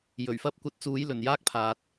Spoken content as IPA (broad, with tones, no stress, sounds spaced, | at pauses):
j ɵ˨˩ ɥ f ɐ˥ p̚ kʷ ɐ˧ t̚ t͡s uː˨˧ j l ɵ˨˩ n j aː˥ k̚ pʰ aː˨ t̚